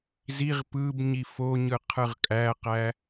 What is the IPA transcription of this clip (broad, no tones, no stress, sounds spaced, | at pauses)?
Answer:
z i ʁ p ɯ b ɲ i f o ɲ ɯ qʰ ɯ ʁ kʼ æ q æ